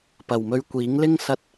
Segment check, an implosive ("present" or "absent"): absent